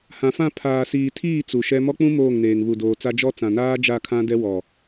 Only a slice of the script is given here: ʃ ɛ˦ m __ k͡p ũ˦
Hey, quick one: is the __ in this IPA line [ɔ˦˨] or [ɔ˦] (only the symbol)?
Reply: ɔ˦